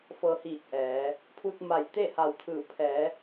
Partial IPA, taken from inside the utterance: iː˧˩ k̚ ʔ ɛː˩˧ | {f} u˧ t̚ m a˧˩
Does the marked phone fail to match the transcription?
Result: yes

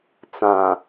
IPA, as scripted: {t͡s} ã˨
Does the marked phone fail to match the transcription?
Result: no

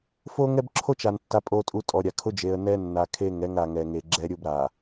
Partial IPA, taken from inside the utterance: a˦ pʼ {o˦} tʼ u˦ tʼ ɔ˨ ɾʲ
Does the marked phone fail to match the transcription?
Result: no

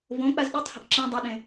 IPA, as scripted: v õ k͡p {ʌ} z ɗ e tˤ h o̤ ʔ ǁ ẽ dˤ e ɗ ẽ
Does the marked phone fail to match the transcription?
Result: yes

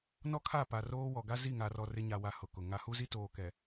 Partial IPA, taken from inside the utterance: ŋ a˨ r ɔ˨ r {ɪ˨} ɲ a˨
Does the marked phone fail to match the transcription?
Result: yes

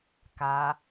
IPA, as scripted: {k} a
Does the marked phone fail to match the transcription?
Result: no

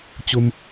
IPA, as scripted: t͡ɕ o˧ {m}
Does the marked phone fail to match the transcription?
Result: no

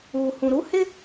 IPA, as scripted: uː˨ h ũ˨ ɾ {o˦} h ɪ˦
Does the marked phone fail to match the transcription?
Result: yes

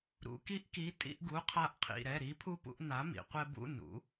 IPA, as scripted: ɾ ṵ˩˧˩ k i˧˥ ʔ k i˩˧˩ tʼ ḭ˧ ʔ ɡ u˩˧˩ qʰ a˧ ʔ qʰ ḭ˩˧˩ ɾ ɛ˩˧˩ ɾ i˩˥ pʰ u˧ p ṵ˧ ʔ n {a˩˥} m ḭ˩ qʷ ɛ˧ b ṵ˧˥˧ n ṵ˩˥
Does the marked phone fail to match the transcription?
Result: no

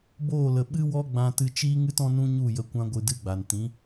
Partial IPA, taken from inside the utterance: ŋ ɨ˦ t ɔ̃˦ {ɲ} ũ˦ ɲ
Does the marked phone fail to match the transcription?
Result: yes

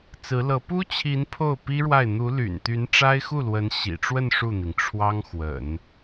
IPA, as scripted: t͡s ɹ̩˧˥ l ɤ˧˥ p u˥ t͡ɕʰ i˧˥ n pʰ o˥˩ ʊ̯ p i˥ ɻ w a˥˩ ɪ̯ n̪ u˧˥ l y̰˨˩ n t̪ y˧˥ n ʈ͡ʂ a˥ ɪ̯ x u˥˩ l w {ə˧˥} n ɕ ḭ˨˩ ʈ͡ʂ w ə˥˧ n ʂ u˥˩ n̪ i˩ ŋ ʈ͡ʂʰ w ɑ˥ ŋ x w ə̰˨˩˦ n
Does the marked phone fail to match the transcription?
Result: no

